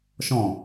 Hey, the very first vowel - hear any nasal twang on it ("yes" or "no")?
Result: yes